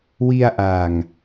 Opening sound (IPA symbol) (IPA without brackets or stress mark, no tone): w